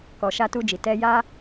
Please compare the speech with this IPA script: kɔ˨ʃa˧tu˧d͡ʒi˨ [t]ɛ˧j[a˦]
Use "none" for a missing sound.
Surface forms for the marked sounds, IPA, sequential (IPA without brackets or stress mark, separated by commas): t, a˦